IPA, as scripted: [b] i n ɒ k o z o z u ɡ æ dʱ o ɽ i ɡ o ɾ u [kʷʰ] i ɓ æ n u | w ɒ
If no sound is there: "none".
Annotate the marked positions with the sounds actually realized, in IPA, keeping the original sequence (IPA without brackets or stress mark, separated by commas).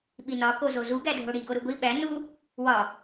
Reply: ɓ, ɡʷ